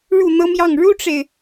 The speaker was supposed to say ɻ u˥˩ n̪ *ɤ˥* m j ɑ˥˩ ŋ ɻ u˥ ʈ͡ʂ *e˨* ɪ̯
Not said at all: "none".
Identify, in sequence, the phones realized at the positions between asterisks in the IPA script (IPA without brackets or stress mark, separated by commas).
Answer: ɤ˥, e˨